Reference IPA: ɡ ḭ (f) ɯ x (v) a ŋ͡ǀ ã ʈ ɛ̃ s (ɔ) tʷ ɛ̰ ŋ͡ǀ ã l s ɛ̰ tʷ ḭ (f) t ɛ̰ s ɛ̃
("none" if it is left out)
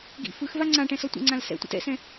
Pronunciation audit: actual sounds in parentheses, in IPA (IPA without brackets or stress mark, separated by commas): f, v, ɔ, none